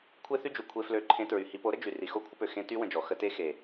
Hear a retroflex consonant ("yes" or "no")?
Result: no